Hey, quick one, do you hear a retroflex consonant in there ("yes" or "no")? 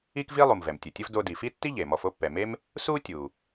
no